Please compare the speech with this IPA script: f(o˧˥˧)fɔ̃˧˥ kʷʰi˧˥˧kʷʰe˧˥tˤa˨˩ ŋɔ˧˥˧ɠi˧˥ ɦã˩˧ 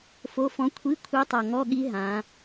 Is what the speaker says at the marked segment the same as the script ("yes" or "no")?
yes